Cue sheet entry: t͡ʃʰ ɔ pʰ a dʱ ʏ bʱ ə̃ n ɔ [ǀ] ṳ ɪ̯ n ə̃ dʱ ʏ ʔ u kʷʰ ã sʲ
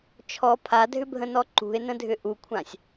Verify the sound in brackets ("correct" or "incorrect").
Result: incorrect